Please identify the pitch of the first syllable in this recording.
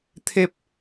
falling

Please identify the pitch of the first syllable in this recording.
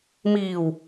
low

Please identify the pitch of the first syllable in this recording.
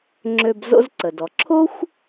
low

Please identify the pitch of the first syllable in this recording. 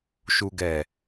low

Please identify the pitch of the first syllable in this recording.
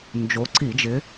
rising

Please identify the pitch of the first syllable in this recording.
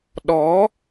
rising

